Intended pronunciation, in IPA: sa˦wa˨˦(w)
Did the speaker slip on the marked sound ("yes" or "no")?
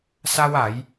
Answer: yes